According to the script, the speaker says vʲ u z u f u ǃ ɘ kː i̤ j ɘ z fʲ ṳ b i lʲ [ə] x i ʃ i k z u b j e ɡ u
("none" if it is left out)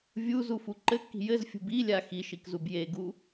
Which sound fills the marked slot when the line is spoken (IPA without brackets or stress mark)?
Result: a